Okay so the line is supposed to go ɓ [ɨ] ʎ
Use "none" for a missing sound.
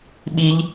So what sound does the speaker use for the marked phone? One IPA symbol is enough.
i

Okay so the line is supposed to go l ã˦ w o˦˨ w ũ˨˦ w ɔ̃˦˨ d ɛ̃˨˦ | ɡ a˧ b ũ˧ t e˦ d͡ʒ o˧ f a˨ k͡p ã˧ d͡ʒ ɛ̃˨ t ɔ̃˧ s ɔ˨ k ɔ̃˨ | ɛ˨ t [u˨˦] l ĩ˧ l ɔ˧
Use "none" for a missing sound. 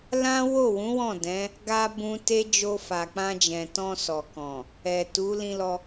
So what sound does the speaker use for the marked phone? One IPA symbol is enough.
u˨˦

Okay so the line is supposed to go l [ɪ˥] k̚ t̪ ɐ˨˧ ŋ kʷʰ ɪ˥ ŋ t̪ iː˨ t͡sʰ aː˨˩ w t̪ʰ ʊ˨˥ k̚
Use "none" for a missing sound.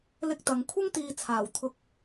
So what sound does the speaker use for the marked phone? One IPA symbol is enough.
ɪ˥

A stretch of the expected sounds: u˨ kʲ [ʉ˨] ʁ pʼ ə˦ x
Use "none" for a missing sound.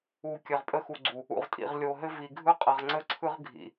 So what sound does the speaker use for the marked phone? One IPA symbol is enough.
ɘ˨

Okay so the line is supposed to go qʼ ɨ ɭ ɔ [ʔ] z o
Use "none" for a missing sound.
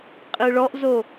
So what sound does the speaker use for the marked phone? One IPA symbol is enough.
ʔ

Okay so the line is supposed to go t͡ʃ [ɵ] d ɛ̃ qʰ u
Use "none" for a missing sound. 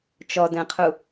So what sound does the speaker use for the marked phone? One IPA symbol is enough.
ɔ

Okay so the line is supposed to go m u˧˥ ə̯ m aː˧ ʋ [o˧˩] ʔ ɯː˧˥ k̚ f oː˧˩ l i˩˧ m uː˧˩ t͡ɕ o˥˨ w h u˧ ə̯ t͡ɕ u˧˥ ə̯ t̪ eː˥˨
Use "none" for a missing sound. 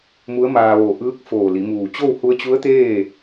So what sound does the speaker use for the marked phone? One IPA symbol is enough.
o˧˩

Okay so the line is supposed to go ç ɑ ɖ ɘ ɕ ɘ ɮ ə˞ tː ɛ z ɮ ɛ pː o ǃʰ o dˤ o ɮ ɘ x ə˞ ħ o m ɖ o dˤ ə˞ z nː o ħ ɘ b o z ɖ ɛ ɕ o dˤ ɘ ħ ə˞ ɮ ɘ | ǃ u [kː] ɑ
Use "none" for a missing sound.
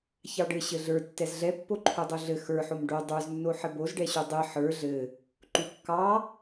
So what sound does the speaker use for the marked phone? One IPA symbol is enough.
kː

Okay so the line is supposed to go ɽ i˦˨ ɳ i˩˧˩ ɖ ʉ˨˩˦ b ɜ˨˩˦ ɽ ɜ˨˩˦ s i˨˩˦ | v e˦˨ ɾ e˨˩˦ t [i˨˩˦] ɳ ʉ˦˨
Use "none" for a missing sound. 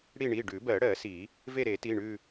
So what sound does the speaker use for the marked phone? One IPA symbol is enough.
i˩˧˩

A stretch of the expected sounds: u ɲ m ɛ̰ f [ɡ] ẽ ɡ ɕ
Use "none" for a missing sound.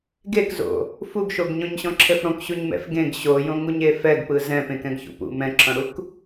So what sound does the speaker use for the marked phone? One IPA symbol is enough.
ɡ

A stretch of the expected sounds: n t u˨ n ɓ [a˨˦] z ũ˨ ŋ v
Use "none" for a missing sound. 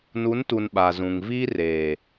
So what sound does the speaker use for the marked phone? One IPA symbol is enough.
a˨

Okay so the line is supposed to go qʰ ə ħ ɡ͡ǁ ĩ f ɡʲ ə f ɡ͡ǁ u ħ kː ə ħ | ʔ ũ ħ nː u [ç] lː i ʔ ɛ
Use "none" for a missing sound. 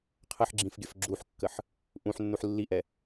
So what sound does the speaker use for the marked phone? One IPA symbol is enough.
ħ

